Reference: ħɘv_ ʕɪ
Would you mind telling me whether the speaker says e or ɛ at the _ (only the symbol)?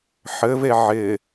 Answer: e